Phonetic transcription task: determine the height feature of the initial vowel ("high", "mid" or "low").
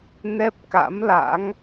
mid